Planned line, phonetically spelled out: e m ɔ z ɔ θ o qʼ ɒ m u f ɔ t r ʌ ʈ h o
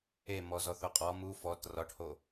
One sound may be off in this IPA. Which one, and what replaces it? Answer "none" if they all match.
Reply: ʌ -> ɒ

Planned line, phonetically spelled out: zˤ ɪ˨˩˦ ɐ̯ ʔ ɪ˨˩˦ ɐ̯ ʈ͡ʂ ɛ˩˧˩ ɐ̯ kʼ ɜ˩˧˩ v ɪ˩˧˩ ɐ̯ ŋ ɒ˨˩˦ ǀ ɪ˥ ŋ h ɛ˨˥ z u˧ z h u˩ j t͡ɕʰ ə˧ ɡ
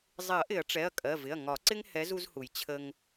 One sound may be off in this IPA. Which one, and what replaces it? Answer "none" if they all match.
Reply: ɡ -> ŋ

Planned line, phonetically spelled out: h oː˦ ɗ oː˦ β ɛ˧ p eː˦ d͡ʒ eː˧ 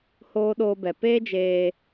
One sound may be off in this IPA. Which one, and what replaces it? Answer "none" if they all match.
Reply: β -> b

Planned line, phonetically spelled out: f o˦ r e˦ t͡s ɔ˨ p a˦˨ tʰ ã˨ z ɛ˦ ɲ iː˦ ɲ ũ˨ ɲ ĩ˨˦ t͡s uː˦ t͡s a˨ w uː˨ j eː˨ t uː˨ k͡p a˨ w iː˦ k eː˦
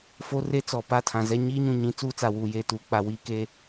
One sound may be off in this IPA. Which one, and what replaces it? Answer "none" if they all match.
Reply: none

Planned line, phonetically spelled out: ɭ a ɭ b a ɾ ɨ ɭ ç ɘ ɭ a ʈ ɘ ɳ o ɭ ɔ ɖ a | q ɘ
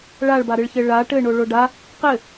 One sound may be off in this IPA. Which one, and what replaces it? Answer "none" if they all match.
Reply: ɔ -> o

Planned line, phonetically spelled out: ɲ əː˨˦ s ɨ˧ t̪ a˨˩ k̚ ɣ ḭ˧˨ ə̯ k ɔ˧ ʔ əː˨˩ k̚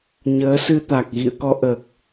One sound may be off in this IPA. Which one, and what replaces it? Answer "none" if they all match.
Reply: none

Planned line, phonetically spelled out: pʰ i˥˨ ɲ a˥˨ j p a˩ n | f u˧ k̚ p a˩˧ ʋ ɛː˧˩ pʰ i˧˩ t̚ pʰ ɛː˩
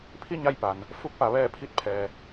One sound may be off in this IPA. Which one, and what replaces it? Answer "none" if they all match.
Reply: none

